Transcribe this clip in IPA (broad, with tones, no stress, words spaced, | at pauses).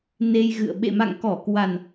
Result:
ne˧jɣɨ̰˧˨ə̯ ɓḛ˧˨ma̰˧˨ŋkɔ˧˩ kwa˨˩n